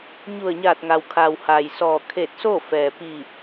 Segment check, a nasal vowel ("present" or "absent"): absent